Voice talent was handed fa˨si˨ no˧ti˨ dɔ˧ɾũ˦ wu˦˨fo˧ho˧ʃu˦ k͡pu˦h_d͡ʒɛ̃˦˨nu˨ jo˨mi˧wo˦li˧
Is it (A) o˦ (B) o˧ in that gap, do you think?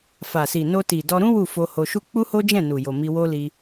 A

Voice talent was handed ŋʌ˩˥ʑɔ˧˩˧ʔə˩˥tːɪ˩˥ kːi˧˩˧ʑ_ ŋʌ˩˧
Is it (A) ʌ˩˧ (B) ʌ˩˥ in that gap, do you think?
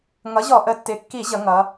A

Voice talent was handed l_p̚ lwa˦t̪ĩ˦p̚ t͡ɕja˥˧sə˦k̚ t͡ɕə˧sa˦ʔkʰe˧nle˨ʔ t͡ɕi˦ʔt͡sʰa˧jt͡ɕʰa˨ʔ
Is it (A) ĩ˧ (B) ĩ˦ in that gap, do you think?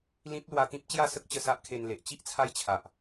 B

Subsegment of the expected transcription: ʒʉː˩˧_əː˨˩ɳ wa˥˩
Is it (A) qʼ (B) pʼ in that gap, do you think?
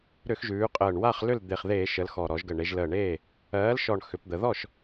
A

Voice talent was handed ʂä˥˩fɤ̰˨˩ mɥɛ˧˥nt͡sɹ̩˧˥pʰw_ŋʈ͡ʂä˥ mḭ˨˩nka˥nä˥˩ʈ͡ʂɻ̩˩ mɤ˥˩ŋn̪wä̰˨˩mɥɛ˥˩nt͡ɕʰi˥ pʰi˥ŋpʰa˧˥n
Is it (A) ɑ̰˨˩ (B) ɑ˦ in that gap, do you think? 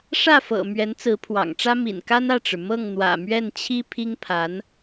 A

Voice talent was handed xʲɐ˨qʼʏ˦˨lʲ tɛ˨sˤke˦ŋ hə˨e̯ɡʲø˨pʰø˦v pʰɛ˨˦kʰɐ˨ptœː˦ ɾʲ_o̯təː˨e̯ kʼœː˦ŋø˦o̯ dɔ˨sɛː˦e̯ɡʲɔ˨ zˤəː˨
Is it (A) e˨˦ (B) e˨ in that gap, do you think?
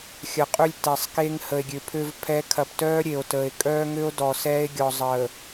B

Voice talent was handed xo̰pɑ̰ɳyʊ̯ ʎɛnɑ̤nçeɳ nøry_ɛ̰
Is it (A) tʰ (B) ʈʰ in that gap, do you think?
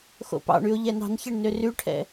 B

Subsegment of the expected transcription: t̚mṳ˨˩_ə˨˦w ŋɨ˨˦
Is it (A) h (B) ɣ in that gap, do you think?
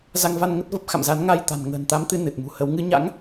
A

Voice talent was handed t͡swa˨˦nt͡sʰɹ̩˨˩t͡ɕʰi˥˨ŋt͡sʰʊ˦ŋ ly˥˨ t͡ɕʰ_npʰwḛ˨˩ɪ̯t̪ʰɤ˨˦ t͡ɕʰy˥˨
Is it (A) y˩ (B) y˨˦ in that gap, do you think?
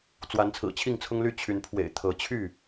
B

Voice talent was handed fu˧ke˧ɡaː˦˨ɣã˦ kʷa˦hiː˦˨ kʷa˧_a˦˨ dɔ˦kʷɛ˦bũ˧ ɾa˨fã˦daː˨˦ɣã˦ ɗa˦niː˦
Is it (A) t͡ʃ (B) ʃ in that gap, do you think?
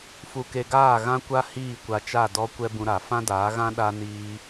A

